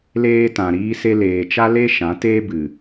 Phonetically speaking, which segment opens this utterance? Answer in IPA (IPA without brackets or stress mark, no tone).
l